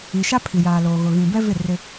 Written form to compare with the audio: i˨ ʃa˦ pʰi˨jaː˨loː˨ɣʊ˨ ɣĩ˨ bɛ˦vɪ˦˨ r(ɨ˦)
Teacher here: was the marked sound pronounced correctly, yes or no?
no